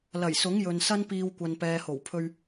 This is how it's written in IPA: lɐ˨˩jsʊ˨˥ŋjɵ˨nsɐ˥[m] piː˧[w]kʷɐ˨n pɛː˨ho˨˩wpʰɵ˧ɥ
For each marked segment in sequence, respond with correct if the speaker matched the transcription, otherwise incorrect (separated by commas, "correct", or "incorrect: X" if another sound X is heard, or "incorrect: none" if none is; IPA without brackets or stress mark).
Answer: incorrect: n, correct